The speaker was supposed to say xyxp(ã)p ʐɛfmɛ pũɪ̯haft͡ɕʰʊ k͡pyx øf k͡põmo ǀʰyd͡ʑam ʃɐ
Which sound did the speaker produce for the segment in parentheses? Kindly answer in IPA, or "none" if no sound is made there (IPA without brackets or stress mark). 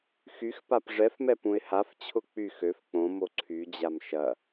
a